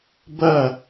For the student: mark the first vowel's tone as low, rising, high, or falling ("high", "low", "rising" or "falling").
falling